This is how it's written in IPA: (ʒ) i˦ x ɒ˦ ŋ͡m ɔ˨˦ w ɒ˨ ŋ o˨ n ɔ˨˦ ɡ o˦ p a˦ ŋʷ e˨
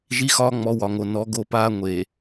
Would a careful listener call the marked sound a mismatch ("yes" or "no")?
no